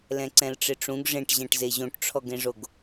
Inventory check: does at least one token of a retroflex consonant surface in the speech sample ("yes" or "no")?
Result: yes